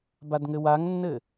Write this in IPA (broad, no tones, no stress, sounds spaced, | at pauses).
b a d ŋ ɘ w a ŋ nː ɘ